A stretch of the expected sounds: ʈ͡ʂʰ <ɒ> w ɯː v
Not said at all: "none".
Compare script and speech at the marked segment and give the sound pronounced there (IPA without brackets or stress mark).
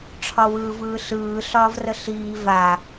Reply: ɒ